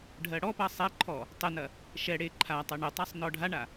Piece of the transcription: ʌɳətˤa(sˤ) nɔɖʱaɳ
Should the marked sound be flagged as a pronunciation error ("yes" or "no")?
no